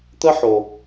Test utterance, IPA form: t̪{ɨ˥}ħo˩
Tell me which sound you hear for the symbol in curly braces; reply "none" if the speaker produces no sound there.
ə˥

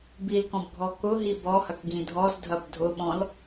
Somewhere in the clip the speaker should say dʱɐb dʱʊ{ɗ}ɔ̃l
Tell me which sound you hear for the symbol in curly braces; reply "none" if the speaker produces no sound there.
ɓ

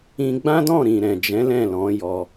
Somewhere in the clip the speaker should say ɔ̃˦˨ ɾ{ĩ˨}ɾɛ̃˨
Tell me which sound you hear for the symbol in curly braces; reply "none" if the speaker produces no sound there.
ĩ˨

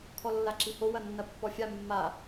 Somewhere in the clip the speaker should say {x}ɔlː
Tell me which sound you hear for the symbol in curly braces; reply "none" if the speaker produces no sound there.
kʰ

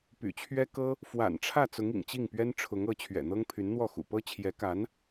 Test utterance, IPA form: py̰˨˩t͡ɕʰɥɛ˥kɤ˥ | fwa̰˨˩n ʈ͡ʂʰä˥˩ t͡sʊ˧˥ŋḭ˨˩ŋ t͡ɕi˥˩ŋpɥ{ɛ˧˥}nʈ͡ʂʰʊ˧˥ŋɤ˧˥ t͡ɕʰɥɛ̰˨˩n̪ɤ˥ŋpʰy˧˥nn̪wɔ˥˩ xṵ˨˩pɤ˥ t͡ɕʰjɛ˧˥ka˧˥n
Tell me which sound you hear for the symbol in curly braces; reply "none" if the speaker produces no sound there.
ɛ˥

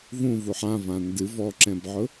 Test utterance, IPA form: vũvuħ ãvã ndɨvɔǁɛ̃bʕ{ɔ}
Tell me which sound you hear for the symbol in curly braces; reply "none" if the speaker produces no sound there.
ʊ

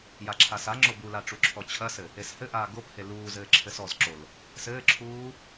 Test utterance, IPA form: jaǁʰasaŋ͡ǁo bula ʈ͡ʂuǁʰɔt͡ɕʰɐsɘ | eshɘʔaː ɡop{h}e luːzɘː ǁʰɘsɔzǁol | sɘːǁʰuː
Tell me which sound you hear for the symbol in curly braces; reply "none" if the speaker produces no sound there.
h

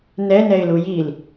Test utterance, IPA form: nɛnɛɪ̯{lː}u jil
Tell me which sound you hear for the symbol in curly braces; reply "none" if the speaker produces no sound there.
l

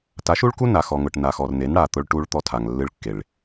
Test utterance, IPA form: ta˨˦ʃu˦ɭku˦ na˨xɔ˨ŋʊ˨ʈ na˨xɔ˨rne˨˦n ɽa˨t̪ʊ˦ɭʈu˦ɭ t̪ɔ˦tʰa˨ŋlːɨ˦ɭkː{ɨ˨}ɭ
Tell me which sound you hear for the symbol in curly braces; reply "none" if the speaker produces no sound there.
e˨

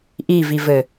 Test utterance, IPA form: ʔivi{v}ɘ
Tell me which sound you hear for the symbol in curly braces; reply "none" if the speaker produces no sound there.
v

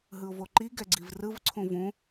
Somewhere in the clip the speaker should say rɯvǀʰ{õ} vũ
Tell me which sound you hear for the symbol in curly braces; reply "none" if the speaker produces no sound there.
ũ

